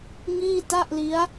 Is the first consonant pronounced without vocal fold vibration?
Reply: no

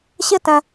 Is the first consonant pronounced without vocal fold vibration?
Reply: yes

